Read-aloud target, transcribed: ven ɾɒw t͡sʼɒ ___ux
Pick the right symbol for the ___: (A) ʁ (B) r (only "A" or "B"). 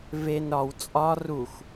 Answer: B